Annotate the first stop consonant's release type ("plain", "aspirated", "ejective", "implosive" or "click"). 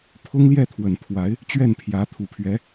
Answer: aspirated